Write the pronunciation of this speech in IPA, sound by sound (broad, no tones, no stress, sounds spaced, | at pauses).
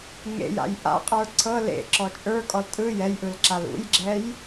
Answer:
ŋ ḛ j a̰ j ʔ a̰ qʼ ə˞ ǀʰ ɤ l ḛ ǁ ɔ t͡ʃʼ ə˞ kʼ ɔ l tʼ ɯ j ɛ j ʔ ɯ l ǁ a l ṵ j ɡ͡ǁ ɛ j